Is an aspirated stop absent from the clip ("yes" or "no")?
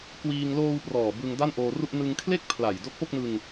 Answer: no